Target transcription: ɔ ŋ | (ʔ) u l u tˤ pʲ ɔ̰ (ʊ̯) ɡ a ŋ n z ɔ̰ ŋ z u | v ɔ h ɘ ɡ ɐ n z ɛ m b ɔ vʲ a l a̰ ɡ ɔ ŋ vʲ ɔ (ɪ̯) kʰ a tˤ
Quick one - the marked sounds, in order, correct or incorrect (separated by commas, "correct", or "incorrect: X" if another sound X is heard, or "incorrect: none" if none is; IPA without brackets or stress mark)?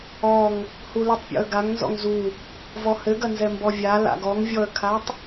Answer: incorrect: h, incorrect: ə̯, incorrect: ə̯